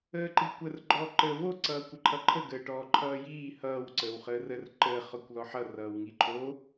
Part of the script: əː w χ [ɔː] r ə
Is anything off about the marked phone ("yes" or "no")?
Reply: yes